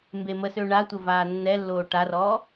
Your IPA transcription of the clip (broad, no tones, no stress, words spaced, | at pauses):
mbeməsø ɳatʷə vaːnːɛlːoː ʈarɔː